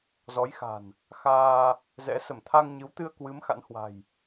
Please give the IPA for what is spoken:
z ɔ˨˦ j x a̤˨˩ n | x aː˧ | z ɛ̰˧˥ s ə˧˩ m t̪ʰ a˧ ŋ ɲ ɨ˨˦ w t̪ ɨ˧ ə̯ k w ɨ˨˦ m x a̰˧˥ n h w a̤˨˩ j

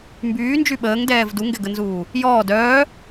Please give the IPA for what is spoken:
m b yː n d͡ʒ y ɓ əː ŋ d ɛː v d u ŋ ɡ ɛ ɡ ə n z uː | j ɔː d œː

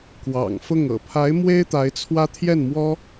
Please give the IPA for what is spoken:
k w ɑ̰˨˩ ŋ f ʊ˥˩ ŋ ɤ̰˨˩ pʰ a˧˥ ɪ̯ m w e˥ ɪ̯ t̪ a˧˥ ɪ̯ t͡sʰ w ä˥ t̪ʰ j ɛ˥˩ n m w ɔ˥

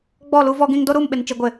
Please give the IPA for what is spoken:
ɡ͡b ɔ˦˨ l u˦ v ɔ˦ ɡ ĩ˦ ŋ d o˦ ɾ uː˦˨ m ɓ ɪ˨ n t͡ʃ i˨ ɡʷ ɪ˨

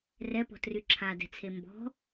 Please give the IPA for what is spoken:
r ɛ p ɔ̤ t r y ǁʰ a d ɛ̤ t͡sʰ e m b ɔ̤

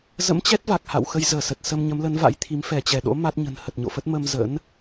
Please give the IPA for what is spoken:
z ə̰˧˥ m t͡ɕ ɛ˦˥ t̚ v a˨˩ k̚ h a̰˧˨ w x ə˧ j z əː˧˩ s ə˨˩ t̚ s ə˧ m ɲ ə˨˦ m l ə˨˦ n v a̰˧˥ j t̪ʰ i˨˦ m f ɛ˧˩ t͡ɕ ɛ˧˩ ɗ o̰˧˥ m a˦˥ t̚ ɲ ə̤˨˩ n h ə˨˩ t̚ ɲ o̰˧˨ f ə˦˥ t̚ m ə˧ m z ə̰˧˥ n

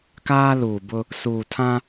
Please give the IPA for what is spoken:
k aː˦ l uː˨ b ʊ˦ | s uː˨ tʰ ã˦

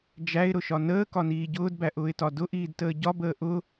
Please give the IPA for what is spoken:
d͡ʒ æ ɪ̯ ɾ ʊ ʃ ɒ n əː k ɒ n iː ɟ ʊː d b æ ʔ ʊː ɪ̯ t ɒ d ʊ ʔ iː d t əː ɟ ɒ b əː ʔ ʊ

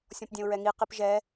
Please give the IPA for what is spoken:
sʲ ɔ̃ p dʲ ɛ̃ ʊ̯ ɹ ɛ ŋ i q i p ʒ ɛ

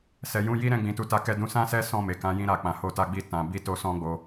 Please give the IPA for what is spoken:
s ɛ˨ j ũ˧ j i˦ ɾ ɛ̃˦ ɡ͡b ĩ˧ t u˧ t a˦ k ɛ˧ d ũ˧ s ã˦ s ɛ˦ s ɔ̃˦˨ m e˨ k ã˨˦ j ĩ˧ ɾ a˨ k͡p ã˨ h o˧ t a˧ ɡ͡b i˧ t ã˨ b i˧ t o˧ s ɔ̃˦ ɡ͡b o˧

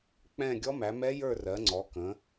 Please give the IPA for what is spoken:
k͡p ɛ̃˥˧ ɡʲ ɔ˦˥ m æ˨˦ m ɛ˦˥ j ə˞˥˧ r ɜ˨˦ ŋ͡ǀ ɔ˨˦ k ə̃˨˦

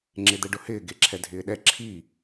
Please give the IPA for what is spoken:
ŋ͡ǁ e d̪ ɛ ɖ ʊ h ɪː ɡ e ǁʰ ɛ dʱ ɪː ɗ ɛ ǁʰ i

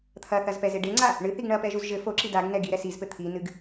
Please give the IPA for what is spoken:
t̪ʰ ɐ θ ɐ z p ɛ z e ɖ e ŋ͡ǀ a | ɳ ɨ θ i ɡ ɳ ɐ p ɛ ʒ u z ʒ ɘ f o ǁ i d a ɡ n ɛ ɡ i ɾ ɛ s i z p ɘ t̪ʰ i n ɨ ɡ

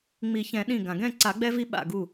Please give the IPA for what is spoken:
ŋ͡m i˨˩˦ ç ɛ̃˨˩˦ ɗ ĩ˧˩ ɡ ã˩ ɡ ɛ̃˥˨ ǀ a˨˩˦ ɡ͡b ɛ˦ v i˦ ɓ a̰˧˩ ɡ u˧˩

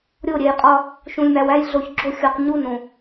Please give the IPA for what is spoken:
ɾʲ o˦˨ ɾʲ e˨ j qʼ ɒ˦ | ʃ ũ˨ lʲ m æ˨ w æ˦ j ɮ o˨ ç ɡ͡ǁ o˦˨ xʲ o˨ q ɲ u˦ n õ˨

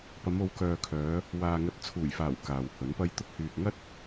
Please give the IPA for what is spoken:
p ɐ˨˧ m o˨˧ w k œː˨ kʰ œː˨˧ | w aː˨ ŋ ɐ˨˥ t̚ t͡sʰ uː˨˩ j f aː˨˩ w k aː˨ w h ɵ˨˥ n p ɐ˥ j t̪ ʊ˧ k̚ h yː˨ k̚ ŋ ɐ˥ t̚

